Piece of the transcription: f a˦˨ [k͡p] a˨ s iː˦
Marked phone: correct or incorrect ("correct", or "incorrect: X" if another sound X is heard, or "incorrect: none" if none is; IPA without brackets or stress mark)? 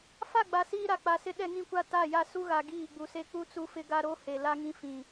incorrect: ɡ͡b